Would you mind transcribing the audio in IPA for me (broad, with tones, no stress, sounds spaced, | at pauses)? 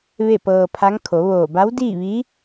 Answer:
ʋ e˥˨ p ɤː˧ pʰ a˧˥ ŋ kʰ o˩˧ ʋ oː˧˩ b a˧˥ w d iː˥˨ ʋ i˧˥